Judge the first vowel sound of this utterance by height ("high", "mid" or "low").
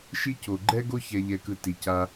high